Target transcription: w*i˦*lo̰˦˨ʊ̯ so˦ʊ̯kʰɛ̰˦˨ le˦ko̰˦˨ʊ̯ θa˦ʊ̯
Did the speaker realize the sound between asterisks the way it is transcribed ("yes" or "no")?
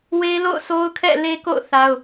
no